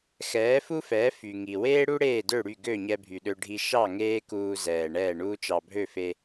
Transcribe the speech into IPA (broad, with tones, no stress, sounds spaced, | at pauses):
x ɛː˩˥ f u˥ f ɛː˩˥ f y˩ ŋ i˩ w eː˥ ɽ u˥ ɽ eː˥˩ d ø˥˩ ɽ y˥˩ ɡ ø˥˩ ɲ ɛ˧ bʱ y˩ ɗ ø˧ ɖʱ i˧ ʃ ɑ˥˩ ŋ eː˥ k uː˧ z ɛː˩ ɳ ɛː˥˩ ɳ uː˥ t͡ʃ ɑ˧ bʱ ø˥˩ f e˧